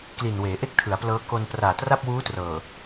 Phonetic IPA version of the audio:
k l i˨˩ n w eː˩˦ ʔ e˥˩ k̚ tʰ ɯ˩˦ a̯ p l ɤː˦˥ k o˧ n p r aː˨˩ t r a˥˩ p̚ w uː˦˥ t r ɤː˨˩

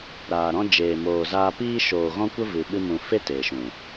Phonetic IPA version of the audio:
ɾ aː˨ ɾ ɔ̃˦ d͡ʒ eː˨ m oː˨ z aː˧ p iː˧ ʃ oː˨ ɣ ɔ̃˦ kʷ ə˦ v ɨ˨ ɓ ɨ˧ m ũ˨ f e˦ t eː˨ ʃ ũ˨

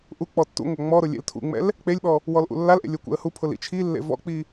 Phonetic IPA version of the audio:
ʔ u k͡p ɔ tː ṵ ŋʷ a ŋ͡m ɔ ɾ ʊ lʲ ḛ l tʰ ṵ ŋ͡m ɛ̰ l | k͡p e lʲ ɓ ɔ | w ɔ l ʔ ṵ lː a l ʔ ḛ lʲ o kʷ ɛ̰ ə̯ h u pʰ ʊ l ḭ t͡ʃʰ i lː ḛ v ɔ̰ k͡p i

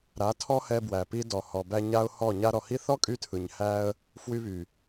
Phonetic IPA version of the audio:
ɾ a˨˦ tʰ ɔ˦ h ɛ˧ b w æ˨ p i˧ d ɔ˨ h ɔ˨ b æ˧ ɲ a˦ ʊ̯ h ɔ˦˨ ɲ a˧ ɾ ɔ˨ h i˦ θ ɔ˦ kʼ y˧ tʰ ɯ˨ ɲ h æ˧ ə̯ | f w y˧ β y˨

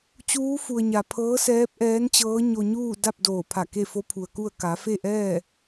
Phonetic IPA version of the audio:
t͡ɕ uː˧˥ f u˩ ə̯ ɲ a˩ pʰ ɤː˧˥ s ɛː˧˥ p̚ ʔ ɛː˧˥ n t͡ɕ ɤː˧˥ ɲ o˧ ɲ uː˥˨ d a˥˨ p̚ d oː˧˩ pʰ a˧˩ k e˥˨ f o˧˥ pʰ u˩ ə̯ k u˥˨ ə̯ k a˩˧ f e˥˨ ʔ ɛː˥˨

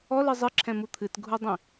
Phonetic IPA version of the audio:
ɔ l ɨ zˤ ɨ ǁʰ ɛ̃ m u t̪ʰ ɨ t ɡʱ u dˤ ĩ

